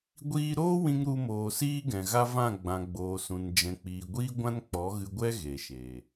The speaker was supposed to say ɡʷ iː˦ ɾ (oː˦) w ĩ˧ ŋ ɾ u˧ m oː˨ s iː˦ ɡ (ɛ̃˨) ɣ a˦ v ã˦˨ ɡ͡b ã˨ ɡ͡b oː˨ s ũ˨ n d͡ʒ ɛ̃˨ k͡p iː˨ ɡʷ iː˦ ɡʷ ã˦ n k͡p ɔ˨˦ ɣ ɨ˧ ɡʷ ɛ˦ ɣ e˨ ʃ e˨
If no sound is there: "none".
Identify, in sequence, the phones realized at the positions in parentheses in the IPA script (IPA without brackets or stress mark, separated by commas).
oː˦, ɛ̃˨